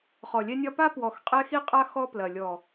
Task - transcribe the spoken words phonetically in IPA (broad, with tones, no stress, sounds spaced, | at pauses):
χ ɔ˨ lʲ ɛ˦ nʲ ɒ˦ p a˦ p w ɔ˨ x qʼ ɛ˦ x i˦ qʼ a˦ x ɔ˦ p l ɐ˨ lʲ ɔ˨